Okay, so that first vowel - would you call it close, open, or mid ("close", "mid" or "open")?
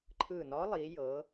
close